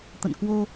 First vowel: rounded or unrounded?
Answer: unrounded